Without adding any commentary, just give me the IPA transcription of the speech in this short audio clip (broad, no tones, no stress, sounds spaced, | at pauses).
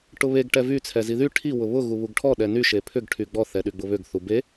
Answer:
ʈ ʊ β e ɡ ʈ ɛ v y t͡sʰ ɛ z i ð y ʈʰ i w ʊ β ʊ ɣ u β u ɡ ʈʰ ɔ ɗ ɛ n y ʃ e pʰ ʏ ɡ ʈʰ y ɡ͡b ɔ θ ɛ ɗ y ɡ͡b ʊ β ʏ ɡ θ u b e